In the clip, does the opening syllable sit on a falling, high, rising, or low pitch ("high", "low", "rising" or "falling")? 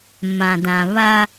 low